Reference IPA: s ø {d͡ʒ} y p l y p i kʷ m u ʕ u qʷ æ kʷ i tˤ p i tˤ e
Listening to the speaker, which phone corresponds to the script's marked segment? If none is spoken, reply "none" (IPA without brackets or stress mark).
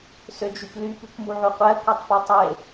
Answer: d͡ʒ